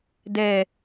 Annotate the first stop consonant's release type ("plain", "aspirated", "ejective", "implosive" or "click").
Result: plain